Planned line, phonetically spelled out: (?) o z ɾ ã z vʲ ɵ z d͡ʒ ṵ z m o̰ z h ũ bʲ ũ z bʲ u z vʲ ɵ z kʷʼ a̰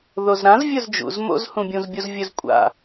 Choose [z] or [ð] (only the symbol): ð